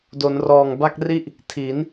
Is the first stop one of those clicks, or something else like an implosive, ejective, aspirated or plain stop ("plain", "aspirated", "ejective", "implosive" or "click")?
plain